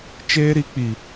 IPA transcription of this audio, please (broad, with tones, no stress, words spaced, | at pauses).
t͡ʃeː˦ɾi˧ k͡pi˨